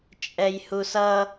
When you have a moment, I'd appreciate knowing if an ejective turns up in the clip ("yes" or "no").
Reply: yes